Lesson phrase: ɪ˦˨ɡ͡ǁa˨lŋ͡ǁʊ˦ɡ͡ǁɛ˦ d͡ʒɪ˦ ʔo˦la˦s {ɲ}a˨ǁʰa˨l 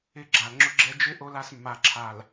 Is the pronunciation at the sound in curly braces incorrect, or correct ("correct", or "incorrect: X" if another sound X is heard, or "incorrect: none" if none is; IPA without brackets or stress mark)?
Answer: incorrect: mː